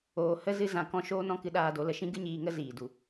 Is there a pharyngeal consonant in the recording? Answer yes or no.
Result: no